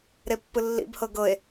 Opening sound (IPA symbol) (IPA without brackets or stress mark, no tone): ɾ